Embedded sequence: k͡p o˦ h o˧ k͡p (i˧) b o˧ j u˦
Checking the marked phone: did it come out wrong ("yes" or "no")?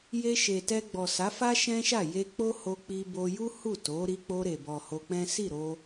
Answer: no